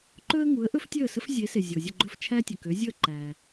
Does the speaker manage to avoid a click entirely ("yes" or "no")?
no